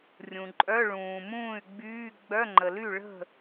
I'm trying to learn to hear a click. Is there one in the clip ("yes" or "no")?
yes